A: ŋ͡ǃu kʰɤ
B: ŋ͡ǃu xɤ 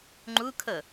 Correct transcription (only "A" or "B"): A